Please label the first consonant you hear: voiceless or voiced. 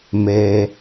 voiced